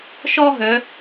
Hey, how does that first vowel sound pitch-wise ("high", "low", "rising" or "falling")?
high